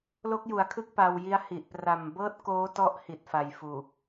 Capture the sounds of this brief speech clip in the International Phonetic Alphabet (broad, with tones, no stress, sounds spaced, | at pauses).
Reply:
l o˦˥ k̚ j u˩˦ a̯ kʰ ɯ˦˥ k̚ p a˧ w j i˦˥ a̯ h i˨˩ ʔ p r a˨˩ m b ɤː˥˩ t̚ k oː˦˥ t ɔ˦˥ ʔ h i˨˩ t̚ f a˨˩ j f uː˨˩